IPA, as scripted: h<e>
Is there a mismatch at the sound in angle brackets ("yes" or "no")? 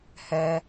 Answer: yes